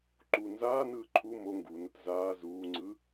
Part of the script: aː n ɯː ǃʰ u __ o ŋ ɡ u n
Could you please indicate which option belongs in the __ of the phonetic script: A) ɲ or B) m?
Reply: B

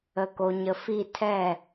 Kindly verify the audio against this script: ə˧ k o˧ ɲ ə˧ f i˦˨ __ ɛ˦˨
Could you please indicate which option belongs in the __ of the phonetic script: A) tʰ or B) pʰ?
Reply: A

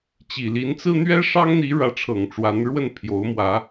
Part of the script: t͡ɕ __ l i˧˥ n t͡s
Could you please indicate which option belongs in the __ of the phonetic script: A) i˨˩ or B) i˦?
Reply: A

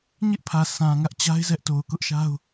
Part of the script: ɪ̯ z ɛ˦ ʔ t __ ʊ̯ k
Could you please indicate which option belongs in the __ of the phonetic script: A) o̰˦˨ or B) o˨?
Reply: B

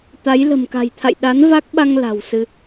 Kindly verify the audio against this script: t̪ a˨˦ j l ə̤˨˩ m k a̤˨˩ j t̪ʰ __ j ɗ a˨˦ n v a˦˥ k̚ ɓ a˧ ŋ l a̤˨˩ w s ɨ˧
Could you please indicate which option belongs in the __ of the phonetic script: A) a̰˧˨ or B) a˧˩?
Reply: A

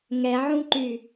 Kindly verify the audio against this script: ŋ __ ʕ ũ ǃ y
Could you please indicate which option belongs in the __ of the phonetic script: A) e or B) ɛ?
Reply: B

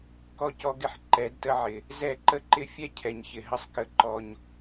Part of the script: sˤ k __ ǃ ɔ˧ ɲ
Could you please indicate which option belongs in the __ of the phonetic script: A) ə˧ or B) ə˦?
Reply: A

